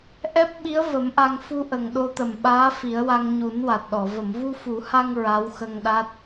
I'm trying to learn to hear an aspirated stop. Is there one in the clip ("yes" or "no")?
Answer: no